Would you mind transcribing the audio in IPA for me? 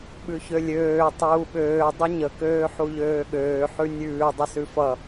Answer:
ɓ ʉ ç ø lʲ øː tˤ uː ɓ øː dˤ ʌ ɲ ə k øː ħ u ʎ øː ɠ øː ħ ʉ nʲ ʉː dˤ ə s ʉ f ʌ

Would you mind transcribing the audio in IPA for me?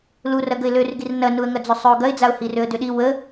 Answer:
l u r ɐ ɡ ə ɪ̯ l ø r ɡ i r n ɐ n u ə̯ ŋ ɐ d͡z ʏ sˤ ø ʊ̯ ɡ ɐ ɪ̯ d͡z a ʊ̯ h i r ø ə̯ d ʏ ɗ i w ə

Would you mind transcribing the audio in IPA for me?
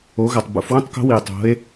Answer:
o˩˧ ɣ ɐ˩ tˤ b ṵ˩˧ f w ũ˥ tˤ k o̤˧˥ w i˩ e̯ tˤ o̤˩˧ e̯

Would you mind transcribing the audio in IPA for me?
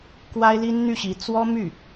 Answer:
k w a˥ ɪ̯ l i˥ n n̪ y˥˩ ɕ i˧˥ t͡s w ɔ˥ m y˥˩

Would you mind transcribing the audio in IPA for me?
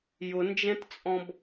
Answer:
j ʊ n d͡ʒ ɛ̃ t t͡sʼ ɔ̃ b

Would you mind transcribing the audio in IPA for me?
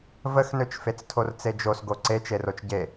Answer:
v ə x n ø t͡ʃ f e t͡s tʰ o r t͡s e d͡ʒ o s ɡ o ǀ e t͡ʃ e r o t͡ʃ ɟ e

